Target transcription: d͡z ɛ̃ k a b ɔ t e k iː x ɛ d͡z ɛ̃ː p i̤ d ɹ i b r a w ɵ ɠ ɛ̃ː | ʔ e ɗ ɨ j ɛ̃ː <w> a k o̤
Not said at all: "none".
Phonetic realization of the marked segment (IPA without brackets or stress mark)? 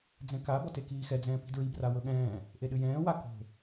w